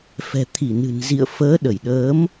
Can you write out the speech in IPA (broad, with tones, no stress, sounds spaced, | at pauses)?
f ɛ̤˨˩ t̪ʰ i˧˩ n ɨ̤˨˩ n z ḭ˧˨ ə̯ f əː˨˦ ɗ ə˧˩ j ɗ əː˨˦ m